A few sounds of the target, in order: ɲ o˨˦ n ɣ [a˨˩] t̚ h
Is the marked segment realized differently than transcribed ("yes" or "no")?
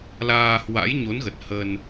yes